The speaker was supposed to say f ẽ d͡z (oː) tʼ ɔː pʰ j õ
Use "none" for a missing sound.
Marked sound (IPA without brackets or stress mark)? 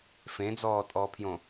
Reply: ɔː